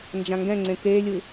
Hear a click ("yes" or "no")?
yes